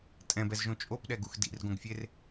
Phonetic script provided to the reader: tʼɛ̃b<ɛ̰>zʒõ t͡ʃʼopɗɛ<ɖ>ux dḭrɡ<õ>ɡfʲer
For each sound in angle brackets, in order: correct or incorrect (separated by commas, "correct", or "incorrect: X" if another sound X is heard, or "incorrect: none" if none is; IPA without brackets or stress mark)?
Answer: incorrect: ɛ, incorrect: ɡ, correct